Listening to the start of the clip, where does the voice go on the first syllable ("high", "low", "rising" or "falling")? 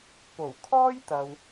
low